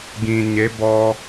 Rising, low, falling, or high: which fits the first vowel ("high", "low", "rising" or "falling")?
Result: low